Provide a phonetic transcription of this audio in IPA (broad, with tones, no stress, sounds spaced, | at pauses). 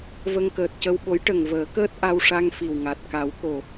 v ə˧ ŋ k əː˨˩ t̚ c ə˧ w ɓ o˧˥ j ʈ ə˨˩ ŋ v əː˨˩˦ k əː˦˥ t̚ ʔ a˧ w ʂ a˧ ŋ f i˨˩ w ŋ a˨˩ t̚ k a˨˩˦ w k o˨˩